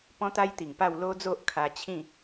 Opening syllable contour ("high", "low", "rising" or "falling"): high